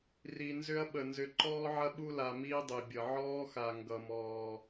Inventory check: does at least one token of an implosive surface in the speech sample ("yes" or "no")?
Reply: yes